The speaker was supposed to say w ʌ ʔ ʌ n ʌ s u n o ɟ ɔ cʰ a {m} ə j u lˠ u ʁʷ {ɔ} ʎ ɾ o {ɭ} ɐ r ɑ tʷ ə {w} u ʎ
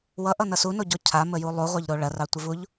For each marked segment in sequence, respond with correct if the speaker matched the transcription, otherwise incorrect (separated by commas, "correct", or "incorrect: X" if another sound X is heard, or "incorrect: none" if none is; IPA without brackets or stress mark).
correct, incorrect: ɑ, correct, incorrect: v